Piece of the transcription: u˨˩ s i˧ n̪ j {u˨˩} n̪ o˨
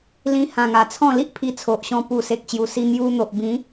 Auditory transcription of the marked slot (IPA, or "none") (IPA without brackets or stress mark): u˧